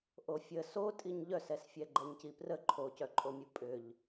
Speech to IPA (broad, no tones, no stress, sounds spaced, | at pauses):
ʔ o fʲ ə s o tʼ i ɲ ʎ œ s ɛ s fʲ ɛ ɡ͡ǃ ɛ ɲ c i p r ə ǃʰ o c œ ǃʼ o mʲ u pʼ ʏ ʎ